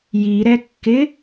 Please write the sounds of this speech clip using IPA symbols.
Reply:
j i ɾ ɛ kː ɪ

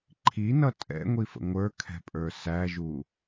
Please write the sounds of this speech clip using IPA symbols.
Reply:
ǃʰ i n ʌ tʼ ɛ̰ ŋʷ i f ə̰ ŋʷ ə˞ kʰ ɛ̤ pʼ ə˞ s æ ʒ u

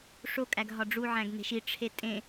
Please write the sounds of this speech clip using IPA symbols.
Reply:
ʂ o kʼ æ ɡ ɦ ɒ ɖ͡ʐ u ʕ æ̃ ɡ n e̤ ʃ i ʈ͡ʂʰ e tʼ ẽ

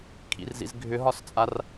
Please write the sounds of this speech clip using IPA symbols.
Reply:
kʰ ḭ r z ḭ z ɡʱ ʏ ɦ ɒ s t͡sʼ a r

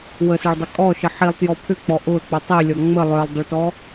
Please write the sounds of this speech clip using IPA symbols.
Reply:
w ə s e ɭ dˤ ʏ kʼ ɔ ʃ ə ħ i lˠ t j ɔ pʰ ʏ k͡p ɔ ʔ ʊ ə̯ k͡p ʏ tˤ i lʲ ɔ ŋ͡m ə lˠ œ lˠ dˤ ʏ ɭ t ɔ

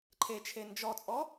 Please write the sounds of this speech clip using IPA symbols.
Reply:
ǃʰ e t͡ʃʰ e n d͡ʒ ɔ t͡sʼ ɔ

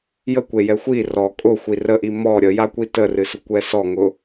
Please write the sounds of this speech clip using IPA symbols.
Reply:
j ə kʷ e j ɛ xʷ i r ɔ kʼ ʊ xʷ i r ə ʔ i m ɔ ɾʲ ə j a kʷ i t ə r ɨ s ʊ kʷ ɛ s ɔ ŋ ʊ

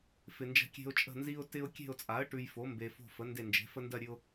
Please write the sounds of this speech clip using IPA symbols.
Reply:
f ɪ˨ n d͡ʒ ə̤˦˨ kʲ e̤˦ ʊ̯ t͡ʃʼ ə̤˦˨ n z i˦ ʊ̯ t ɪ˦ ʊ̯ kʲ e̤˦˨ ʊ̯ t͡sʼ a˩˥ ə̯ ʈ ʉ˨ j f o˩˥ m b e˨ f o̤˦˨ f ə˩˥ n d e˦˨ n d͡ʒ e̤˩˥ f ə˦ n d ɜ˦˨ ɾʲ ʉ˦ ʊ̯

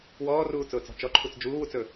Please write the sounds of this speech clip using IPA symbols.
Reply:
w ɔː r uː t͡s ʊː t͡s ɔ̤ t͡ʃ ɔ ǃʰ u t͡s d͡ʒ uː w u t͡s ɵ

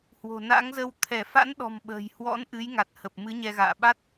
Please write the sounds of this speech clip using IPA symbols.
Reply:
h w o̤˨˩ n a̰˧˥ ŋ z ə˧ w t̪ʰ ɛ˧˩ f a̰˧˥ n ɗ ɔ̤˨˩ m ɓ ə̤ː˨˩ j h w ɔ̰˧˥ n ʔ ɨ˨˦ j ŋ a˨˩ t̚ h ə˨˩ p̚ m ɨ˨˦ ɲ ɛ˧ ɣ a̰ː˧˨ ɓ a˦˥ t̚

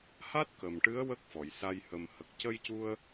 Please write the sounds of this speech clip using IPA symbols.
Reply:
h a˦˥ t̚ k ə˨˩ m ʈ ɨ˧˥ ə̯ w ə˦˥ k̚ f ɔ˨˩˨ j s a˧ j h ə˨˩ m h ə˨˩ k̚ c ə˧ j c u˧ ə̯

